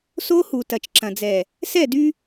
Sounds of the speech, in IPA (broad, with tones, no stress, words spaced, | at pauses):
so˦hu˨ tɐ˨t͡ʃǁɐ̃˨d͡zɛ˨ | sɛ˦˨dy˦